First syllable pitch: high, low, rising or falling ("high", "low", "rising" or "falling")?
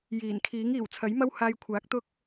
low